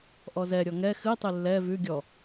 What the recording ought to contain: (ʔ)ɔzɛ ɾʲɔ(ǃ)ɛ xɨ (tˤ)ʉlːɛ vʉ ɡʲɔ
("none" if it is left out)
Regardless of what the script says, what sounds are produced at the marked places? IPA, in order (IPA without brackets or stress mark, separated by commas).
ʔ, ŋ, tˤ